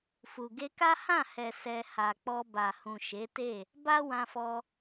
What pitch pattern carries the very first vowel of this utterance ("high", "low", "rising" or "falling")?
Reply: low